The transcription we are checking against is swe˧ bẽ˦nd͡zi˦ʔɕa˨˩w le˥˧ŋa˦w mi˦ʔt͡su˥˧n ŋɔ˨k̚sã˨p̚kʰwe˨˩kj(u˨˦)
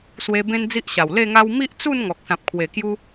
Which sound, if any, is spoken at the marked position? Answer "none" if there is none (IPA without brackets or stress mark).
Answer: u˦